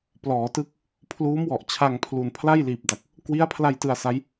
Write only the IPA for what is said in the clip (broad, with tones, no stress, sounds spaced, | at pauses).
p l ɔː˩˦ t ɯ˥˩ k̚ | pʰ l uː˦˥ m w ɔ˨˩ ʔ t͡ɕʰ a˧ ŋ pʰ l u˨˩ n pʰ l a˥˩ j l iː˨˩ p̚ d a˨˩ k̚ | k w i˦˥ a̯ pʰ l a˧ j t ɯ˧ a̯ s a˦˥ j